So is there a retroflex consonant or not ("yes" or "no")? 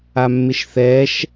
no